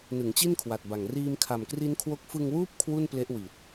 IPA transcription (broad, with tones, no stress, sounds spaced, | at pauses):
n ɯ˩˦ ŋ t͡ɕ i˥˩ n kʰ w a˨˩ t̚ b a˨˩ ŋ r iː˧ m kʰ a˨˩ m k r i˦˥ n kʰ w o˦˥ k̚ f ɯ˧ ŋ w uː˥˩ p̚ kʰ w u˥˩ n p l e˦˥ ʔ w i˨˩ t̚